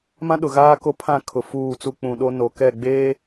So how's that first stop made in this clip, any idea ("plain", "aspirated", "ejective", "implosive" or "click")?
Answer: implosive